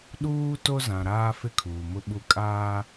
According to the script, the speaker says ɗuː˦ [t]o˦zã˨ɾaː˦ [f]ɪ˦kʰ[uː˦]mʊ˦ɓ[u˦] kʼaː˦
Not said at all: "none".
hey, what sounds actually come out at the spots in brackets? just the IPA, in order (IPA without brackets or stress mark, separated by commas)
t, f, uː˨, u˦